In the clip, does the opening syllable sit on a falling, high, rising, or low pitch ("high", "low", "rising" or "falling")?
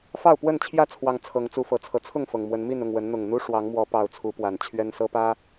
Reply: falling